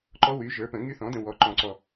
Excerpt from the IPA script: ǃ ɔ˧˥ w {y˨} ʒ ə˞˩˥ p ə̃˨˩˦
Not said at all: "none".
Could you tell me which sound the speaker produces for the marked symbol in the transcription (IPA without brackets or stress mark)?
y˩˥